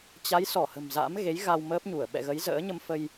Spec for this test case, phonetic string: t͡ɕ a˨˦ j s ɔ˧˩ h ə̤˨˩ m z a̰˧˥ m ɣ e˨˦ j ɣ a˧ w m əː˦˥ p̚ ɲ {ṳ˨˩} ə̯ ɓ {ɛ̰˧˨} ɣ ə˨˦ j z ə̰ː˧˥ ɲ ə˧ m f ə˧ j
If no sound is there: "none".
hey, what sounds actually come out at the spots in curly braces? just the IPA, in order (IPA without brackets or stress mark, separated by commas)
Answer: u˧˩, ɛ̰˧˨